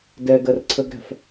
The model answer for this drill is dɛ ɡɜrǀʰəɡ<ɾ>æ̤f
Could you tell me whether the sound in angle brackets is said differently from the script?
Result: no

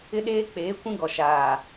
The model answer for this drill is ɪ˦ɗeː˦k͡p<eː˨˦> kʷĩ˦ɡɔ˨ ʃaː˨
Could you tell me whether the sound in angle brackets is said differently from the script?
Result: no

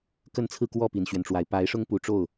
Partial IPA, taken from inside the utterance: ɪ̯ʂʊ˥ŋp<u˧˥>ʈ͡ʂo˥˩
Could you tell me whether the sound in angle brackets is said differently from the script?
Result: yes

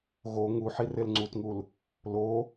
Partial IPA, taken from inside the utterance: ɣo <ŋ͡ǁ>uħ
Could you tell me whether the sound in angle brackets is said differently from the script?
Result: yes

